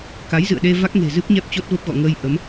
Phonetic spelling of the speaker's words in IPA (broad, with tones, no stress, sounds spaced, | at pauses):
k a˨˦ j z ɨ̰˧˨ ə̯ ɗ e˧ v a˦˥ k̚ ŋ e̤˨˩ z ɨ˦˥ p̚ ɲ ɛ˦˥ p̚ t͡ɕ o˦˥ t̚ v ə˦˥ p̚ ɣ ɔ̰˧˨ ŋ əː˧ j ʔ ə˨˦ m